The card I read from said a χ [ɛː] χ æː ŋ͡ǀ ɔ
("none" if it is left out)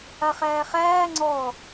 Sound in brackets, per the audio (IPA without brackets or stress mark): æː